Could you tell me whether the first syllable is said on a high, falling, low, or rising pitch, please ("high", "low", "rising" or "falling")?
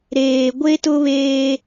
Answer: low